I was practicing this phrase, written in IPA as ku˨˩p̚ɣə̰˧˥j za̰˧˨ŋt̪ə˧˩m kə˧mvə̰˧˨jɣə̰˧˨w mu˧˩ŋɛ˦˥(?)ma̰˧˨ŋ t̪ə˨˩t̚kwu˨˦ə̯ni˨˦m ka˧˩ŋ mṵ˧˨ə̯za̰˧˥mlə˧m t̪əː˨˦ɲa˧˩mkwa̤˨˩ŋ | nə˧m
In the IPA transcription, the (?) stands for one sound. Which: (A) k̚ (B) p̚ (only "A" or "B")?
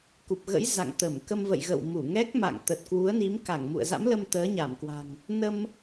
A